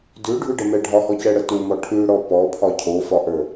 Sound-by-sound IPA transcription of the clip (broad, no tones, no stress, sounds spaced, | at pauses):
d ʉ ɖʱ ʉ ɖ ə m ɛ ɖʱ ɒ h ɔ c ɛ ɽ ə t u m ɔ ʈʰ ʉ ɽ ɔ p ɔ pʰ ɒ cʰ o f ɒ ʔ ə˞